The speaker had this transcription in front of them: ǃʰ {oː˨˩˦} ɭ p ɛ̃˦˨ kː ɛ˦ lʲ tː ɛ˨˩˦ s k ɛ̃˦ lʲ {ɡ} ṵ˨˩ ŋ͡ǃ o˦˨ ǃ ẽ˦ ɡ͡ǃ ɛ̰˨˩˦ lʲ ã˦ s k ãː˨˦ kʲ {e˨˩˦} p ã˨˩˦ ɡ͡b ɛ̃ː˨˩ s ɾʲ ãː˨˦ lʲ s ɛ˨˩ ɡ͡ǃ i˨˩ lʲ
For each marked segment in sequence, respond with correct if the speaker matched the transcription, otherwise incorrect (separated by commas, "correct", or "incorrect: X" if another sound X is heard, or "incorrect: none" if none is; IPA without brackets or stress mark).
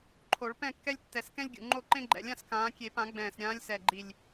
incorrect: o˨˩˦, incorrect: ɡʲ, correct